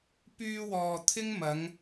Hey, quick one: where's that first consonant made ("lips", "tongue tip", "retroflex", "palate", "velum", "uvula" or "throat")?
lips